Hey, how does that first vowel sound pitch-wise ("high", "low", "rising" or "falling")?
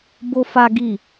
high